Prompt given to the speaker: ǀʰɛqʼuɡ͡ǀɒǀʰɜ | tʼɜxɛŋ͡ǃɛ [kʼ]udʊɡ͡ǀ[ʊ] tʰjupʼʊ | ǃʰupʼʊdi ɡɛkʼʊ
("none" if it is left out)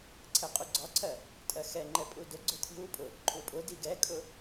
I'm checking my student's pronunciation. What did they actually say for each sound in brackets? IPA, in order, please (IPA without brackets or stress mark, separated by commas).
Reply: pʼ, ʊ